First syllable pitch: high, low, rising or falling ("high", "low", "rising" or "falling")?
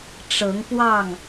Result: rising